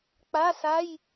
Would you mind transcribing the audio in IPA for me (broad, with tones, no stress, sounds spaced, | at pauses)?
k͡p a˧˥˧ s a˧˥˧ j